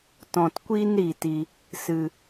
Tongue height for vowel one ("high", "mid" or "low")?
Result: mid